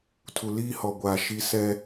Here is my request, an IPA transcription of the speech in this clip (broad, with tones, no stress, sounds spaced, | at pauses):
tʰ u˨ l iː˦ h ɔ˨ ɡʷ aː˨ ʃ i˦ s ɛ˦